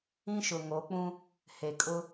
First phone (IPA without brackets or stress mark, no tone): ĩ